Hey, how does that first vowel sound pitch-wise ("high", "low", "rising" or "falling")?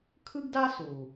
high